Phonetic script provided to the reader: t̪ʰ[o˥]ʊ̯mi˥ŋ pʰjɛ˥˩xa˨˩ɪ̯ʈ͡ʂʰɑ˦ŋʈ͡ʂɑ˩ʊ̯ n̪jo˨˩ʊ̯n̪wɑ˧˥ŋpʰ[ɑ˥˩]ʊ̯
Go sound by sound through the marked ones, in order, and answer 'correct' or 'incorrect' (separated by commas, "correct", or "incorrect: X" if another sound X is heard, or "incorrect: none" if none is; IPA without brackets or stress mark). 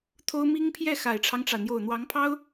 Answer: correct, incorrect: ɑ˥